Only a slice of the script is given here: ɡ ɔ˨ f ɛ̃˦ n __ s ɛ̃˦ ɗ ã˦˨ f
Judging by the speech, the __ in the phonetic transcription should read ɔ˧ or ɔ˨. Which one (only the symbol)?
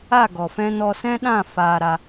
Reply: ɔ˧